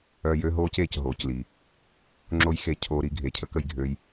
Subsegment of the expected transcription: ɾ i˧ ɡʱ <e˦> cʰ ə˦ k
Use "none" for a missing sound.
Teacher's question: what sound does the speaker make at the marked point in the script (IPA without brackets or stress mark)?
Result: e˨